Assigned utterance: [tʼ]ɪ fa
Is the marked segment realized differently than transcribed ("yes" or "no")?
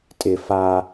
no